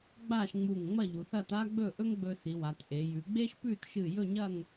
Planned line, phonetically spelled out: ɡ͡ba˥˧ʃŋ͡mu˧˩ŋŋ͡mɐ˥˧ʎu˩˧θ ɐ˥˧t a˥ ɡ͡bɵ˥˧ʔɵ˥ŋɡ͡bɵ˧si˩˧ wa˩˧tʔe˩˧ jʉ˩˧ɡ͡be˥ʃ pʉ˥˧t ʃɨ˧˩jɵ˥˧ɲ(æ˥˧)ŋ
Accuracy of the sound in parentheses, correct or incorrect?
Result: incorrect